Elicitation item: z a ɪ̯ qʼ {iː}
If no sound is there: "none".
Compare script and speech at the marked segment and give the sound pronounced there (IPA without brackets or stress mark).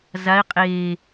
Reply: eː